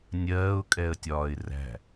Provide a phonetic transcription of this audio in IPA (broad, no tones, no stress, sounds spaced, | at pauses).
nʲ ɜː ʊ̯ kʼ ɛ ə̯ tʲ ɒː ɪ̯ r æ̤